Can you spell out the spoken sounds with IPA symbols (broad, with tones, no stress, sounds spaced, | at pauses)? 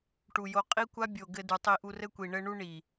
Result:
ʈ u˨ j o˧ qʼ i˦ kʷ a˦ bʲ o˨ ɡ ɘ˧ d u˨ tˤ i˧ ʔ u˧ r ɘ˦ kʷ i˨ ɳ ɘ˧ ɳ u˧ ɳ i˨